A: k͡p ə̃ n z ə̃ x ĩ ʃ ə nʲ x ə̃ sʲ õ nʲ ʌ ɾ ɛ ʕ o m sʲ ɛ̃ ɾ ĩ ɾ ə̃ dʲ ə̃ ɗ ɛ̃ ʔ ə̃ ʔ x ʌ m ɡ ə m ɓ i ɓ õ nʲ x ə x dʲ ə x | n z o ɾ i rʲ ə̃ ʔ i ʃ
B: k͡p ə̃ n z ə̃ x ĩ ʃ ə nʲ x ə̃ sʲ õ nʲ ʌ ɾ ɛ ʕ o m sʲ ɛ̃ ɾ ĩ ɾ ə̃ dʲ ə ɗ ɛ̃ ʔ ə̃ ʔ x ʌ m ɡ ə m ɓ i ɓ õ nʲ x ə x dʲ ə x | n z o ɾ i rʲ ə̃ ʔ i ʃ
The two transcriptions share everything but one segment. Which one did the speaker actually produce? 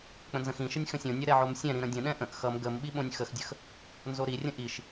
A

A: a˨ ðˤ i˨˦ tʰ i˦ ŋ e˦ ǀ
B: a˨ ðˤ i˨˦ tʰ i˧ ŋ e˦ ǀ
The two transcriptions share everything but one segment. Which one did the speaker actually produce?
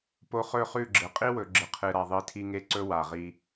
B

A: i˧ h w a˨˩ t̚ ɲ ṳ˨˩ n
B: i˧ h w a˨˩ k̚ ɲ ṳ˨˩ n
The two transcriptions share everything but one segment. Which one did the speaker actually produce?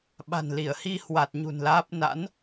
A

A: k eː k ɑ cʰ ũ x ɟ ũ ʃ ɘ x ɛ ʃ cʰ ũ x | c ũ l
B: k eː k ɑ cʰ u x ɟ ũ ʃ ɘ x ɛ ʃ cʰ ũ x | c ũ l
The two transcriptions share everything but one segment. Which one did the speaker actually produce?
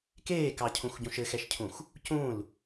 A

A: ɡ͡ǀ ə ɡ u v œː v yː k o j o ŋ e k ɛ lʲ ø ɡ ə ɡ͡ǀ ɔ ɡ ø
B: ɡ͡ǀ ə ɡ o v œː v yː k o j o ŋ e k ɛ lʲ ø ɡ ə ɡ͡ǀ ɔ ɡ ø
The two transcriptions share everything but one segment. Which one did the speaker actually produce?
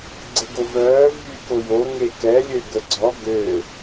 B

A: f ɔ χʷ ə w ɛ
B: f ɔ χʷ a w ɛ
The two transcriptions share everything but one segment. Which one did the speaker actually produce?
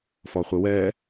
A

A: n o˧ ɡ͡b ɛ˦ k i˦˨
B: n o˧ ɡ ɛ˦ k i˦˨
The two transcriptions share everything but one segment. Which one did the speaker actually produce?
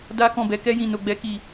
A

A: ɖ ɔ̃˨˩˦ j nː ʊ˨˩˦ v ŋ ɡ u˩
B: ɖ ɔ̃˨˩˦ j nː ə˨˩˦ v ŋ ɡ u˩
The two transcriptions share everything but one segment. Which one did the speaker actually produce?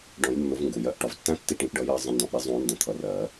A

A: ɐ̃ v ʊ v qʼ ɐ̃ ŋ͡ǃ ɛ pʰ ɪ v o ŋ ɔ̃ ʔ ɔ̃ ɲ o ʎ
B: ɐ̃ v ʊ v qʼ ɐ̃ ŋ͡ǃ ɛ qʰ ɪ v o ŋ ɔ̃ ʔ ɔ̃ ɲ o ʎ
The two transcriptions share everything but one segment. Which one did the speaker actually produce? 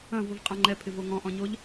A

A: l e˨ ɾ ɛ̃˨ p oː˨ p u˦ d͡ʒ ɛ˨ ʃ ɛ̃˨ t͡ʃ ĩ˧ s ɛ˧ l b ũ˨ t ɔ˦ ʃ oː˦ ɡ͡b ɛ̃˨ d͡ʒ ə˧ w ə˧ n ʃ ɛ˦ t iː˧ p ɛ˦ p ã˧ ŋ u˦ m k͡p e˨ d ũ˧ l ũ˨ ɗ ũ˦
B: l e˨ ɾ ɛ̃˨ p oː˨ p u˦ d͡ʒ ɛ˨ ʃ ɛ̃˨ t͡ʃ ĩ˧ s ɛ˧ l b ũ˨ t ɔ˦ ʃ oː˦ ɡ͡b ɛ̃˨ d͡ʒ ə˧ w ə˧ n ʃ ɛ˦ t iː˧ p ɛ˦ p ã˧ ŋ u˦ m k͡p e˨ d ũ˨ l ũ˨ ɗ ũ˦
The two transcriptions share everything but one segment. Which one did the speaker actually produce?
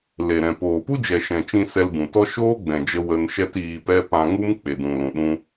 B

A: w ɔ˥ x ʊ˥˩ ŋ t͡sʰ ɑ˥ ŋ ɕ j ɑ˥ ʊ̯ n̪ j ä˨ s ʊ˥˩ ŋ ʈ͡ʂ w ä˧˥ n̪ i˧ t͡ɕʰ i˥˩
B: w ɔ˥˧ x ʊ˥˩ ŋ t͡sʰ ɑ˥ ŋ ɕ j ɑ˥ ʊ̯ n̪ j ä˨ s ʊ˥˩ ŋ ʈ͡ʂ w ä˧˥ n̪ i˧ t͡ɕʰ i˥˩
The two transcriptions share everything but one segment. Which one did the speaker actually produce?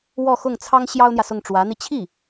B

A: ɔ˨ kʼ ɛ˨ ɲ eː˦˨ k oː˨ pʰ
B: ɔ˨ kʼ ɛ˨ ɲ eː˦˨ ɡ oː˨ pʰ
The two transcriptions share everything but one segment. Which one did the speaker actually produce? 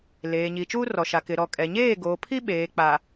B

